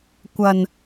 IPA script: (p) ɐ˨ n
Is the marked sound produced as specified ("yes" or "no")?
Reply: no